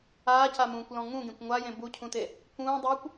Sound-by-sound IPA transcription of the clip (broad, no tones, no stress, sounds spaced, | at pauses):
aː c a m ũː kʷ l ɔ̃ ŋ ũ ɡ ẽ kʷ ŋʷ a j ẽ b u cʰ ũ t e | k ũː dˤ uː kʷ